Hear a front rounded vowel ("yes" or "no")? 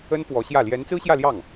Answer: no